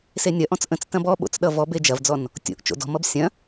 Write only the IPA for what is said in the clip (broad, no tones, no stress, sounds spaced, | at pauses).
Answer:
s e nʲ ɐ ʔ ɔ̃ t͡s ʔ ə̃ t͡s t ɐ̃ b ɔ ɓ o̰ t͡s ɗ ʌ v ɔ b e d͡ʒ ɐ v d͡z ɔ n | tʲ o̰ ʔ t͡ʃ o̰ d ɔ̤ m ʌ b sʲ ɐ̃